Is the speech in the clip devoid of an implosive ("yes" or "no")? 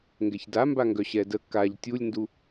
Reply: yes